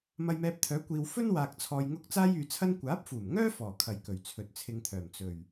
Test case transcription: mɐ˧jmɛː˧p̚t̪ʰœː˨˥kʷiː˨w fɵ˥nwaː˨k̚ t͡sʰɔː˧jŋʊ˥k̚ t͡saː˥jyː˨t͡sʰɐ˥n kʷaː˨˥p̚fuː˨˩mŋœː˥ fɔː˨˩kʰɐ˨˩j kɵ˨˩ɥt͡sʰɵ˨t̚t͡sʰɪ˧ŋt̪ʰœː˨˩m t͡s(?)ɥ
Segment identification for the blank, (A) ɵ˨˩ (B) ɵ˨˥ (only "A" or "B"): A